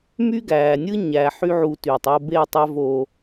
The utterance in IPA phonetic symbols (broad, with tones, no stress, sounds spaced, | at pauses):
m y˦ ɡ æː˨ nʲ ɯ˦ ɲ æ˨ ħ y˦ ʕ u˧ t yː˨ tˤ o˧ b e˦˨ tˤ æ˧ v o˨